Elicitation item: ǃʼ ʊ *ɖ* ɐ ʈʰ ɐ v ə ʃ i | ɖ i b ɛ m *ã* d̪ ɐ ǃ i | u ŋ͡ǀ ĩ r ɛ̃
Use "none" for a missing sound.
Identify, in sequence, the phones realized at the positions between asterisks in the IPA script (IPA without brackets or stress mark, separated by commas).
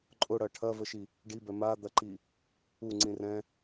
ɽ, a